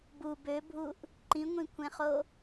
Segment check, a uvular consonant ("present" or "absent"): present